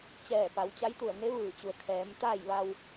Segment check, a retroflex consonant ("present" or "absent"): absent